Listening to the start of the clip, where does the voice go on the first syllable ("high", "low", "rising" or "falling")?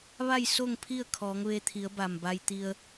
falling